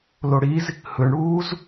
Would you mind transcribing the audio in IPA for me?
loɽiz | hɯɳɽuːz

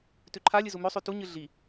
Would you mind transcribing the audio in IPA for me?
tʉǃʰalʲɨ zumɵsˤʉ tuɲɨ ɮi

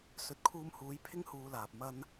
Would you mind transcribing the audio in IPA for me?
sɵ˨˥t̚kʰuː˧mhuː˨˥j pʰɪ˥ŋhuː˨˧laː˨p̚ mɐ˧n

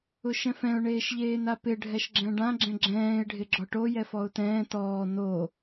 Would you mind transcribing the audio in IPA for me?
ʊʃɛ̃fɛ̃ʊ̯ ɳeːʃʎeːnapɪ ɖʱɛʃɡ͡ǁɛ̃ɖã ɡ͡ǁɛ̃ɡ͡ǁɛ̃ːɪ̯ ɖʱɪɡ͡ǁɔʈo jɛfɔʊ̯tɛ̃ː tɔː no

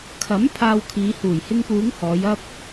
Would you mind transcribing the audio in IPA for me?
kʰɐ˨˥m pʰaː˧wkʰiː˨˧ huː˨˩jhɪ˧ŋpuː˨˧ŋ hɔː˨˧jɐ˥p̚

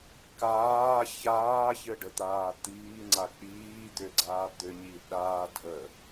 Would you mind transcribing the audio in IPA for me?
kaː çaːçɘɖət̪aː t̪iːŋ͡ǀa k͡piː d̪ʏɡ͡ǀaː d̪ʏɲi ɗaː dʱə

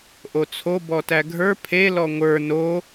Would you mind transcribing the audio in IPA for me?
ʔot͡sʰo bɔtæɡʱə˞ pʰe lɔŋʷə˞ no

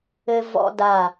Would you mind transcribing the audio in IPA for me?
ɘ˧vɔ̰˧da˧˩

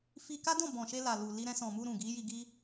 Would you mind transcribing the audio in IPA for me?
fi˧ka˦dɔ̃˦˨ bɔ̃˨ʃe˧ la˨lu˨ li˧ɾɛ̃˧sɔ̃˨mu˧ ɾũ˨ ɡi˨˦ji˧ɡi˦

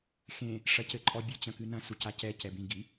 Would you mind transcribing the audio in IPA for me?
xẽ | ʂɐcɘǃʼɔbʲɨ t͡ɕɐ̃kɨnɐ̃ sucacɛ cɛbĩ ɡi

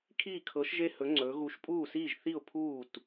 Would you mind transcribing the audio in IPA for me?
kʰiː˥˨kʰɤ˧˥ʃ ʒe˥˨hɵ˧˥ ŋ͡ǀɵː˧˥ ɣu˧˥ʃpʼuː˥˨siː˥˨ʒ θi˥˨ʊ̯pʰuː˥˨t

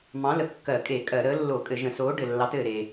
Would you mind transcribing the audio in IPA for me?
mɑ̃˨˥lə˩ kːɜ˧˩˧kʼe˧˩˧ kʼɜ˧˩˧ɾəː˨˥lːo˧˩˧kʼɘ˧˩˧ ʒə̃˧˩˧soː˨˥ ɖɘ˩lːɑ˨˥tɘː˩ɾe˩

